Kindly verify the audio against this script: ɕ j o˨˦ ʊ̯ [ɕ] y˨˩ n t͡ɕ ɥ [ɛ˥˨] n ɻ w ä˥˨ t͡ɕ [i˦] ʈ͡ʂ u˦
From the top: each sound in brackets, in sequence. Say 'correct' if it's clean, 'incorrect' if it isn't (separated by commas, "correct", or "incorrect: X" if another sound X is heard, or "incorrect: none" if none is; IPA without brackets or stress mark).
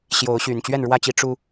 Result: correct, correct, correct